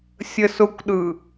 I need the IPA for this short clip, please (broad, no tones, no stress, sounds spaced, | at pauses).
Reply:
sʲ ə s ʊ kʷ ɗ ɯ